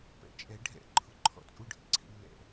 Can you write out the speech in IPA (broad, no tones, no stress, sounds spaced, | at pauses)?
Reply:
p ɛ̰ t͡ʃʼ ɛ ɖʱ ɛ̰ ǃʰ ʊ ǃʰ ɔ̰ t͡sʼ u ɖʱ ḭ ǀʰ ḭ lː ɛ̰